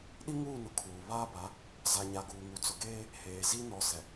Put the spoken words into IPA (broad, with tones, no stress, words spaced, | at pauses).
ɗi˦ŋuː˦˨nʊ˨ kʰuː˨ βaː˦ba˨˦ | za˨ɲa˨ɡuː˨ ŋu˨t͡sʊ˨ɡeː˦ | heː˨ zi˦ nɔ˨ sɛ˨